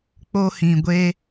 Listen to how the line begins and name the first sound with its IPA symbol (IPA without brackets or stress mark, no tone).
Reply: k͡p